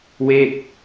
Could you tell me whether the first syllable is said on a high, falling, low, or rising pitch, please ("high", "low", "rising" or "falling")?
falling